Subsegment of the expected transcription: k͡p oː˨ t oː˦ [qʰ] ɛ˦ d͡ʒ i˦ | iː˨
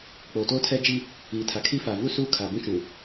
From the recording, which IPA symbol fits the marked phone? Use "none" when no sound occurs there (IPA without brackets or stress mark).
tʰ